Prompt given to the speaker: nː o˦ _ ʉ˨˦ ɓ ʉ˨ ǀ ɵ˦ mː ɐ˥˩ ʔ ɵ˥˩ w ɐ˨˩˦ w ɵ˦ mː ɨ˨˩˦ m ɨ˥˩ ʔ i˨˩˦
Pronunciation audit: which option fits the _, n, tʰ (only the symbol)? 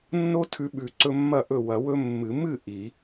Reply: tʰ